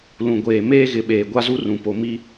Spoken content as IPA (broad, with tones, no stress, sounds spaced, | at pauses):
l ũ˨ ɡʷ eː˨ m eː˦ ɣ ɪ˨˦ ɓ eː˨ ɡʷ a˦ z u˦ r ũ˨ p o˨ m i˦